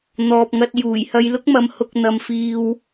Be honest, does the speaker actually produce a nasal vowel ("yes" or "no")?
no